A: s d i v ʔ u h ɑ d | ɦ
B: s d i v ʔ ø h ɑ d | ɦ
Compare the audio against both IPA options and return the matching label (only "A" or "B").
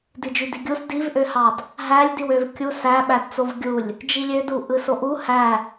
B